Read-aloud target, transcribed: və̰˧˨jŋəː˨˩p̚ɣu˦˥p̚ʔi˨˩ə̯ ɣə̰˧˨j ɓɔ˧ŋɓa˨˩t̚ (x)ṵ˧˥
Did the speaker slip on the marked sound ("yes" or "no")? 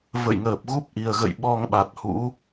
yes